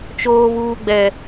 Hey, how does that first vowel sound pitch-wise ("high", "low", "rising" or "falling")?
high